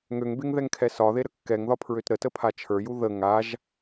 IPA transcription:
ŋ ø ŋ b e ŋ ð ɛ ŋ kʰ ɛ s ɒ ð e ɾ ə kː ɛ ŋ ð ɒ pʰ ɹ ø t ɾ ə t ə pʰ a t͡ʃʰ ə˞ j u ð ə ŋ a ʒ

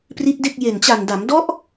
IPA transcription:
p r i˦˥ t̚ d e˥˩ k̚ j e˨˩ n t͡ɕ a˨˩ n d a˩˦ m d ɔ˦˥ ʔ

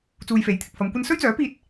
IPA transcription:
t͡s uː˧ j f e˨˥ j t̪ʰ ɪ˨ k̚ f ɐ˨˧ m kʷ ɐ˥ n s ɵ˥ ɥ t͡s œː˨˥ p iː˧ t̚

